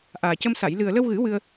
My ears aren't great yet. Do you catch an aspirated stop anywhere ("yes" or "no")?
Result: no